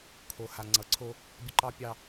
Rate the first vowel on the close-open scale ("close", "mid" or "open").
mid